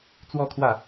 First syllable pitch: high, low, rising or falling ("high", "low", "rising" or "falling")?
falling